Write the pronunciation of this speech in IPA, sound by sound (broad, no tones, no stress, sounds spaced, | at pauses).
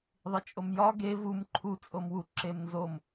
ðˤ i t͡ʃʼ o m j ɒ ɡ e v u m ǃʰ u t͡sʼ o m w u ǁ e m n z o m